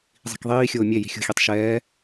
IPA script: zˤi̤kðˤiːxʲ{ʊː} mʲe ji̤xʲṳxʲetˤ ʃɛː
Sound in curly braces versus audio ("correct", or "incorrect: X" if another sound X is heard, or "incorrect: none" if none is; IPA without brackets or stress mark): correct